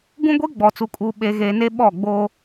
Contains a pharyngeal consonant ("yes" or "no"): no